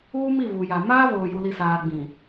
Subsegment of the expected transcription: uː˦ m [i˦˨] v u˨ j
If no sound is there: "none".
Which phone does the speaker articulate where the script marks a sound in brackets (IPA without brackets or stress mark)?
i˦˨